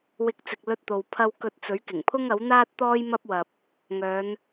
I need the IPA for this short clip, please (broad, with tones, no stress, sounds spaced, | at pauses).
w ɪ˨˥ k̚ t͡s ɪ˨ k̚ l ɵ˧ t̚ t̪ o˨ w pʰ ɐ˧ w k ɵ˧ t̚ t͡s ɵ˨˥ ɥ k ɪ˨˩ ŋ pʰ ʊ˥ ŋ ɐ˨˥ w n̪ aː˥ t̚ t̪ ɔː˥ j m ɐ˥ p̚ w ɐ˧ p̚ | ŋ œː˨˧ n